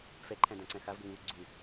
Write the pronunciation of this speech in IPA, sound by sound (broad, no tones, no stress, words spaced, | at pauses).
fɛǃʰæ̃dãǀæ̃ xavɡəŋuː ɡ͡ǀu